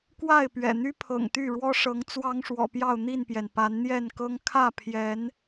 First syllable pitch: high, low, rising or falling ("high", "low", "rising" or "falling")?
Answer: falling